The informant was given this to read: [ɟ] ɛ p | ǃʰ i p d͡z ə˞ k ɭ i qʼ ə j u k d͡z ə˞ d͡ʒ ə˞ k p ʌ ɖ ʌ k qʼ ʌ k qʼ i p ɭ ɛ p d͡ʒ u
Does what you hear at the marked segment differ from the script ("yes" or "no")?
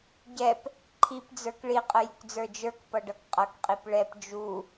no